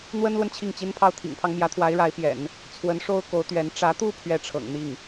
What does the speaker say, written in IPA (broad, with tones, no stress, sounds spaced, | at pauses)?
n̪ w ə˥ n l w ə˨ n t͡ɕʰ i˥˩ ŋ t͡ɕ i˥ n pʰ ɑ˥˩ ʊ̯ t̪ʰ ḭ˨˩ ŋ pʰ ɑ˦ ŋ m j ä˧˥ t̪ʰ w a˧˥ ɪ̯ ɻ a˧˥ ɪ̯ p j ɛ̰˨˩˦ n | t͡sʰ w ə˧˥ n ʂ o˥ ʊ̯ k o˧˥ ʊ̯ t̪ ɥ ɛ˧˥ n ʈ͡ʂ ä˧˥ t̪ u˥˧ pʰ ɥ ɛ˥˩ ʈ͡ʂʰ ɤ̰˨˩ ŋ n̪ i˥˩ ŋ